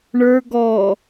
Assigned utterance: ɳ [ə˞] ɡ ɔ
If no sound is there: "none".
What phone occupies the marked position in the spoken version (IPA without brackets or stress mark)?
ə˞